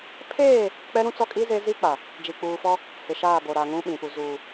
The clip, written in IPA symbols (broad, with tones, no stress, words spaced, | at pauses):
pʰeː˦˨ | k͡pɛ˦ɾũ˦t͡sɔ˦kʼi˦ ze˦ zi˦k͡pa˨ | d͡ʒi˨k͡puː˨fɔ˦ | hɪ˨ʃaː˦˨bo˨ ɾa˨ŋũ˦ɓĩ˨ pu˨zuː˨